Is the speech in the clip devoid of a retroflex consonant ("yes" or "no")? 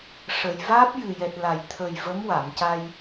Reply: no